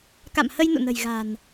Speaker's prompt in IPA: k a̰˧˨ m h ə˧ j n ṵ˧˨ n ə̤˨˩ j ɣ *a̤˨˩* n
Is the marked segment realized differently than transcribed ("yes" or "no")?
no